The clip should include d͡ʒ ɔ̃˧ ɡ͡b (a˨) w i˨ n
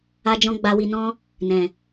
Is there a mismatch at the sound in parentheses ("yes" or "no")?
no